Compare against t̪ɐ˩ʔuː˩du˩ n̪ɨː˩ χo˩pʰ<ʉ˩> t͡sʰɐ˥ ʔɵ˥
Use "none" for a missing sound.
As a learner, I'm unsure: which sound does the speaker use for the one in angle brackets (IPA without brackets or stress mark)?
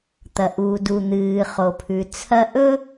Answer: ʉ˩